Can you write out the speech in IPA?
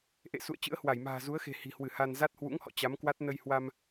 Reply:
ʔ ḛ˧˨ s ṵ˧˨ ə̯ t͡ɕ ɨ̰˧˥ ə̯ h w a˧˩ j m a̤ː˨˩ z u˨˦ ə̯ x e̤˨˩ h i̤˨˩ h w ɨ˧˩ h a˧ n z a˦˥ t̚ h w ṵ˧˥ ŋ h ɔ̰˧˨ t͡ɕ a˨˦ m k w a˦˥ t̚ n ə˧ j h w a˧ m

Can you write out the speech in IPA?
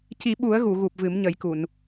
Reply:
c i˨˩˦ ɓ u˨˩˦ ə̯ ɣ u˨˩˨ ɣ u˨˩ p̚ v ɨ˨˩˦ m ɲ ə˨˩˦ j k u˨˩˨ n

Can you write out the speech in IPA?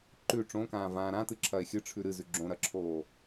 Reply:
ǃ ʉ ʈ͡ʂ õ k ãː v ãː ɾ ã t ɨ ǁʰ ɐ e̯ xʲ ɨ ʈ͡ʂʰ ʉ ɾ ɨ z ʉ ɡ͡ǁ õ ɾ ɐ ǁʰ oː

